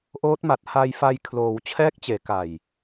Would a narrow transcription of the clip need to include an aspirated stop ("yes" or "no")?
yes